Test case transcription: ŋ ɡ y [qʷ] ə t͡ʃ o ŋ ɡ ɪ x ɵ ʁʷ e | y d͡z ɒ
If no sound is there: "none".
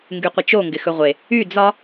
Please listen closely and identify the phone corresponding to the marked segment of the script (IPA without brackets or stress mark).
qʷ